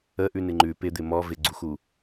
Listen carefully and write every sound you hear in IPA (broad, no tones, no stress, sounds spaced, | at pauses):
ə ʔ ʉ n ɪ ŋ͡ǃ ʉ p ɪ d̪ ɪ m ɔ v ɪ ɡ͡ǀ u x u